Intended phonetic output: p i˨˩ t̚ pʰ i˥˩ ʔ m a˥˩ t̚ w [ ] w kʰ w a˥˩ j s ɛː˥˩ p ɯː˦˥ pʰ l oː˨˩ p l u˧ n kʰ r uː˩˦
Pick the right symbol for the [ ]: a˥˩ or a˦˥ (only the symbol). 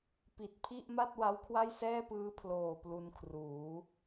a˦˥